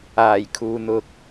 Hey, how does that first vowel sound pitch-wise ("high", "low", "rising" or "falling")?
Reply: low